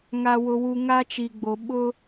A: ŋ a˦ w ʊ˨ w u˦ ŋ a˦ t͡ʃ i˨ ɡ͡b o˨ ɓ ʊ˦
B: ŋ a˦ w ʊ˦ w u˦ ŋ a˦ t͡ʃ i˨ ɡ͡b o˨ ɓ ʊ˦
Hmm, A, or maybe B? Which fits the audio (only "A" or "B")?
B